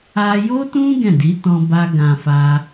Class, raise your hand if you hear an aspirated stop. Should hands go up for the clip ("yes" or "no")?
no